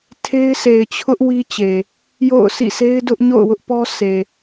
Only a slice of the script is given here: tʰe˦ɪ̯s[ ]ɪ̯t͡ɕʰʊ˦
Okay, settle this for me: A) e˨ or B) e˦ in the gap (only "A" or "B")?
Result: A